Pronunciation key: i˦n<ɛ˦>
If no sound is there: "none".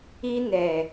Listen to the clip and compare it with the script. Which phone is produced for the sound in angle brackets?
ɛ˨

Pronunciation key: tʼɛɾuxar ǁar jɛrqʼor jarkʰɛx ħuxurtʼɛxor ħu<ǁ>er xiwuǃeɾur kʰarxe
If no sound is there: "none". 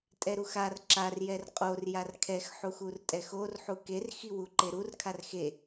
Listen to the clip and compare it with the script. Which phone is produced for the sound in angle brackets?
k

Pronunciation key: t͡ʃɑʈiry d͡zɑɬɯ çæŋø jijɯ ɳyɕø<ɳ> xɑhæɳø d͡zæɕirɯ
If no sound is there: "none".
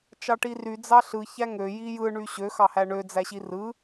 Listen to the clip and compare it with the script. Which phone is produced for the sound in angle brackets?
none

